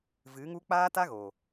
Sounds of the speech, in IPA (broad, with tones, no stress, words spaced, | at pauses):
vɨ˨˦ŋu˦ k͡paː˦ta˦ɣo˨